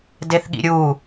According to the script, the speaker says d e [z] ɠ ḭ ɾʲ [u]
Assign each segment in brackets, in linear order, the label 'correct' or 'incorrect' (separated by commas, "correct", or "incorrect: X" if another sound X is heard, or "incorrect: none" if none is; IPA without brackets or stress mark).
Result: incorrect: θ, correct